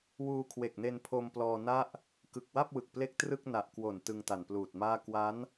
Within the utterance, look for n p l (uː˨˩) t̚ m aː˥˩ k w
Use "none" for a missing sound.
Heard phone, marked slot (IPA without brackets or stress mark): uː˨˩